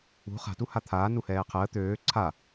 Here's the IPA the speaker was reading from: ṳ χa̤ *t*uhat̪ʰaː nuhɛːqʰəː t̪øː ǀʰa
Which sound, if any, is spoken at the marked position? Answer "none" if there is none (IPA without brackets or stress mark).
t